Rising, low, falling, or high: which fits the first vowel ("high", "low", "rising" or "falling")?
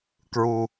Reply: low